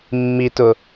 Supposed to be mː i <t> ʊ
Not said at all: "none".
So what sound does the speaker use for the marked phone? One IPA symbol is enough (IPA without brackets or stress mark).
t